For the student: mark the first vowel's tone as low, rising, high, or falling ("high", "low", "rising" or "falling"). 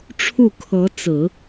falling